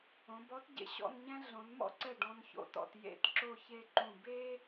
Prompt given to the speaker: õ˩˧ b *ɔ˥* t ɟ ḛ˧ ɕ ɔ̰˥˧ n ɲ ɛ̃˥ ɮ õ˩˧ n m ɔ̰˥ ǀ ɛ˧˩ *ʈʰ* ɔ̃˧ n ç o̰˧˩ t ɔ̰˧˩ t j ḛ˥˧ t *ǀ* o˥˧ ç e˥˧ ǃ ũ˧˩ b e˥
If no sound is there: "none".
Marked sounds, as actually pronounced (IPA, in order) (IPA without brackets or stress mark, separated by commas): ɔ˥, ɖ, ǁ